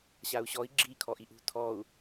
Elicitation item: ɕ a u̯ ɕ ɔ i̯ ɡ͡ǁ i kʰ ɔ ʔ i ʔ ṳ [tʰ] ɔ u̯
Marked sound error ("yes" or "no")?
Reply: no